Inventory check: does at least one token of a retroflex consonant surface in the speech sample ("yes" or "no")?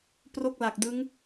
no